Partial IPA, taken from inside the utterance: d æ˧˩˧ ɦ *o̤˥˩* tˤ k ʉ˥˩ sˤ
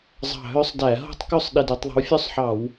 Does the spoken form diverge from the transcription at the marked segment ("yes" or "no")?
no